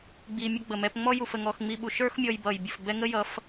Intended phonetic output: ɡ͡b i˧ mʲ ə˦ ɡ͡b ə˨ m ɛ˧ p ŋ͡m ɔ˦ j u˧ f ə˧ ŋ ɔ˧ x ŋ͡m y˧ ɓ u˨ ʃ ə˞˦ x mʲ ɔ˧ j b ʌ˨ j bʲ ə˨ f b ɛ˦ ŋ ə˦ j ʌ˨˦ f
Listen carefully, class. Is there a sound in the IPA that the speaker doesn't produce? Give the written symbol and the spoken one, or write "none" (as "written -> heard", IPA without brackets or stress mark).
y˧ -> i˧